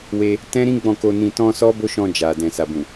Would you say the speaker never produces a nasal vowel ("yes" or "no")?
no